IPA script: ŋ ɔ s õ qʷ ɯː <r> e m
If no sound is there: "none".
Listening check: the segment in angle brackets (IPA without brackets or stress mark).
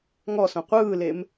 l